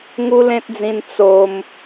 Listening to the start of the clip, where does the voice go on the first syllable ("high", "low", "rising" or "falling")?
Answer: high